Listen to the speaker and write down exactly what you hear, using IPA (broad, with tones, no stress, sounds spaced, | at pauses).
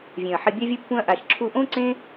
vʲ ẽ˨ ɐ̯ ħ ɪ˧ bʲ a˦ vʲ ʊ˦ pː ũ˦ ɐ̯ ʔ a˧ ʃ ǁʰ u˧ ʔ õ˦ ǀ ẽ˦